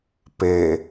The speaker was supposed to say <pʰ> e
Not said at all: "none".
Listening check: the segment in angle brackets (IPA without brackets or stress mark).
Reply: p